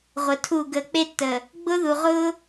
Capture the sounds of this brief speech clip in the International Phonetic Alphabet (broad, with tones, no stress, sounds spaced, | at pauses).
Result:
ʁʷ ə˨ tʰ u˦˨ ɡ ə˦˨ k͡p e˦ tː ə˨ | ɡ͡b ʊ˦ ð u˨ ʁ ʊ˦